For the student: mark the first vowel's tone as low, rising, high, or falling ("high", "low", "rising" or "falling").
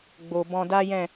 low